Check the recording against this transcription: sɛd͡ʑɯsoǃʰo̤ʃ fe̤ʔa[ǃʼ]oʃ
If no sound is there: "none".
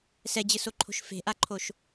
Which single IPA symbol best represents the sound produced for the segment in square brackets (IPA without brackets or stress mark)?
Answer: ǃʰ